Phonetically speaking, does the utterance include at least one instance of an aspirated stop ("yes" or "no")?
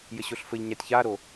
no